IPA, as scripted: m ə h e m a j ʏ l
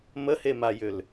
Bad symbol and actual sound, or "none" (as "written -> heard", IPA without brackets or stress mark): none